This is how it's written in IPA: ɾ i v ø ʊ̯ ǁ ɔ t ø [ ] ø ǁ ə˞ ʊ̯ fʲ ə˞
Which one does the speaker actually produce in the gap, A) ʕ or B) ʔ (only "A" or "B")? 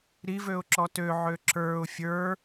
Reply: A